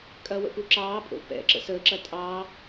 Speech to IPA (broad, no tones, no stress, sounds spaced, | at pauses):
kʼ ɐ w ə̰ p u ǁ ɑː pʼ o̰ p ɛ̰ ǁ ə̰ s əː ǁ ɐ tʼ ɑː